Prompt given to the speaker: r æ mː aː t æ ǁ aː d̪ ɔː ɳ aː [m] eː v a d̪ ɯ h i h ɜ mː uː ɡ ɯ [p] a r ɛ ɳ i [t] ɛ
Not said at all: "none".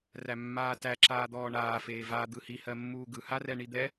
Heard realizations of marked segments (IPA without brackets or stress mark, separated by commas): f, h, d̪